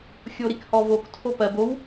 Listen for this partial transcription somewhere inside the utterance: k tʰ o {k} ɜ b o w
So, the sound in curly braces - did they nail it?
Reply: no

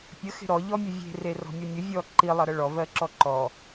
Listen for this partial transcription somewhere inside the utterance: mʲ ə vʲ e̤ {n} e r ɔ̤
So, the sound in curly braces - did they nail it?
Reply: no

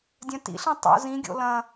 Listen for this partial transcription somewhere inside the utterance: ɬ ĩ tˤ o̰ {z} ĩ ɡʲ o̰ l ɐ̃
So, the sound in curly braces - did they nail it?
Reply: yes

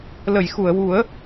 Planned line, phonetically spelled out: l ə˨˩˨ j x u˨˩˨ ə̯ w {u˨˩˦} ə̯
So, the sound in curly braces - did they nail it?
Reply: yes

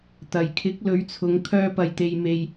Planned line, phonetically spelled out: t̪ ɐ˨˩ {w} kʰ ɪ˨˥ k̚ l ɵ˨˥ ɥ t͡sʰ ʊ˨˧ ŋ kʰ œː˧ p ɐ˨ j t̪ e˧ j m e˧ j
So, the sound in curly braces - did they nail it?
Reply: no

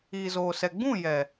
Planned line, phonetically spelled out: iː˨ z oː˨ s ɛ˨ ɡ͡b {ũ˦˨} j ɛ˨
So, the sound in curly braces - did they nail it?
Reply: yes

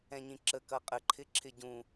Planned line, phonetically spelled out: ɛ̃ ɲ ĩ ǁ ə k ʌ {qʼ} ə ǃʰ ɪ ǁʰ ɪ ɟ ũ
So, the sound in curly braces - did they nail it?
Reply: yes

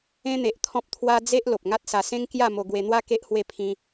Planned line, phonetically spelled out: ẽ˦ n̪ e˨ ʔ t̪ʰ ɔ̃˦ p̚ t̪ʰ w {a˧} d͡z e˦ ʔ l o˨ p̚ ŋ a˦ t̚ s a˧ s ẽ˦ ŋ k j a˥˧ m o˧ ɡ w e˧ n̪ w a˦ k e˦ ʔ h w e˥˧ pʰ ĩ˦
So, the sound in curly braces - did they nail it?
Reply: no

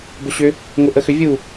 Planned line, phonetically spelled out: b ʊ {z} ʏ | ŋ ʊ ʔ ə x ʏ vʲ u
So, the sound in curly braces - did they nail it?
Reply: no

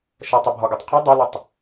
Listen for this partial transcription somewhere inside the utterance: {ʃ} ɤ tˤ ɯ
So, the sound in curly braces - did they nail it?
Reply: yes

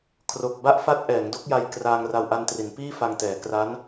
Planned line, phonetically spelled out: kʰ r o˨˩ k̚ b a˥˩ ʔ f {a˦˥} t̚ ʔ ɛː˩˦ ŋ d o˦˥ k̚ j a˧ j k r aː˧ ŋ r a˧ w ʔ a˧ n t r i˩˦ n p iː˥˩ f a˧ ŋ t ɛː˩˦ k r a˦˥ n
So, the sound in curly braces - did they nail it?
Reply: yes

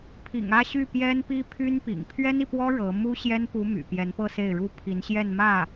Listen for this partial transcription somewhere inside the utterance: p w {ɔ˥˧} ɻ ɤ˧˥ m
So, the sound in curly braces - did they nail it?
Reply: no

